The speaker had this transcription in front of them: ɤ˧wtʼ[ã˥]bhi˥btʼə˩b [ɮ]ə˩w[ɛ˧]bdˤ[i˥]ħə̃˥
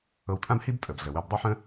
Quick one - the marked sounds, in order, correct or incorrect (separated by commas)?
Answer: correct, correct, incorrect, correct